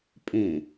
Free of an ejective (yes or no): no